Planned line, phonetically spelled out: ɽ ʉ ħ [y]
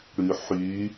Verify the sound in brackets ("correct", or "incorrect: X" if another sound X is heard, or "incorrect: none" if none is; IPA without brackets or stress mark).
correct